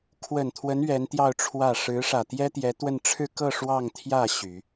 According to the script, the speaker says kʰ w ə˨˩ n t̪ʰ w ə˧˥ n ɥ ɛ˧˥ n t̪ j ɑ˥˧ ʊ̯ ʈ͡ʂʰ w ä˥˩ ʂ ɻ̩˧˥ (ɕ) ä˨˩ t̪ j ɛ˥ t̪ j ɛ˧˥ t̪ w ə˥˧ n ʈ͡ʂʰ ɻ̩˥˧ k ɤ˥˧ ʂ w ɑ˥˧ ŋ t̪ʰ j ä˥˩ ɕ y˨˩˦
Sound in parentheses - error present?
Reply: yes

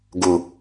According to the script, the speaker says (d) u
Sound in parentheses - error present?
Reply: yes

